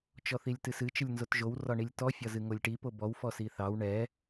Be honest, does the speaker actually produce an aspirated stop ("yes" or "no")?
no